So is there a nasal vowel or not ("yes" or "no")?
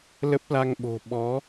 no